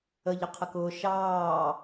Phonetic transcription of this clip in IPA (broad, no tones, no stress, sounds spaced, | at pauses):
ə ʎ ə qʰ ə k ʊː ʃ ɑː